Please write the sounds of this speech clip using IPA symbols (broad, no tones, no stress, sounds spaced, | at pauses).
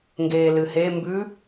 ŋ ɡ eː l ɨ h e m b ʉ